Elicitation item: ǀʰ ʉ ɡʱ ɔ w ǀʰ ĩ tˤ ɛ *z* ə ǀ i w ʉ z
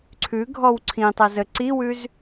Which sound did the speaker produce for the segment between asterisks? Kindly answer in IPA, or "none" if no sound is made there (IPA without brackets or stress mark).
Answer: z